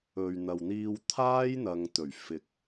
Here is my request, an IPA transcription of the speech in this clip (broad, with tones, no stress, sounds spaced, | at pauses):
ɵ˨ ɥ n̪ ɐ˨ w n̪ iː˧ w t̪ʰ aː˥ j n̪ ɐ˨ ŋ t̪ ɵ˨˩ ɥ f ɪ˨ k̚